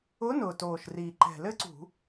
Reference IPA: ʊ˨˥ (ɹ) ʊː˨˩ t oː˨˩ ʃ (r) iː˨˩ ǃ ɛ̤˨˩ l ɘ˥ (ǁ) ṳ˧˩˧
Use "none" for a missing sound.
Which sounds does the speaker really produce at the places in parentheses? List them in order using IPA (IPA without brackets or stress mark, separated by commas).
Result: n, r, ǀ